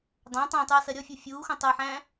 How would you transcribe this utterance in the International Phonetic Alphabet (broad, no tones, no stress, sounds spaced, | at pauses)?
dˤ ã tˤ æ̃ tˤ u ɐ̯ s ɜ ɾʲ ɔ fʲ u fʲ uː x õ tˤ ɜ ħ æ̃ː